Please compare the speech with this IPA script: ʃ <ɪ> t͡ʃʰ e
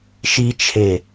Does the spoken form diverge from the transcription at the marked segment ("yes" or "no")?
yes